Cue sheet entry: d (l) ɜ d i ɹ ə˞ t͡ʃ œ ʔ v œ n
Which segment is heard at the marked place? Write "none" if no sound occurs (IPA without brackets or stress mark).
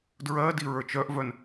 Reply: ɹ